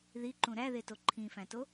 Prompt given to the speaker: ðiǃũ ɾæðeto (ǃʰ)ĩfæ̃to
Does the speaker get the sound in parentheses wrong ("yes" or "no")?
no